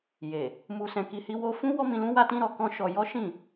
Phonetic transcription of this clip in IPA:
je˨ | mu˧sɛ̃˧ki˧ hi˧wo˧fũ˦ wɔ˦mĩ˧lũ˦wa˦ tĩ˦ɾɔ˧kɔ̃˦ ʃɔ˧ jɔ˦ʃĩ˦˨

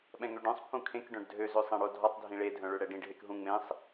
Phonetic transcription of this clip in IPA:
ɓɛ̃ŋøɖœ̃sˤ pʰũkʰẽk ɖœ̃ɖdʱøz øsˤɛ̃ɽodʱɔtˤ dʱĩɭe dʱœ̃ɭøɽɛɖĩɖ ɦekɦũ ŋ͡mẽsˤ

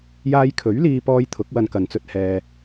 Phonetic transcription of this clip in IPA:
jaː˧jkʰɵ˨˥ɥliː˧pɔː˧j t̪ʰʊ˨˥k̚wɐ˧nkɐ˨nt͡sɵ˧t̚ hɛː˧

